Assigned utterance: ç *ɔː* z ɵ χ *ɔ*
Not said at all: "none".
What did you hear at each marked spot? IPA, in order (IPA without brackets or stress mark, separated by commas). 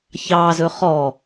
ɑː, ɔ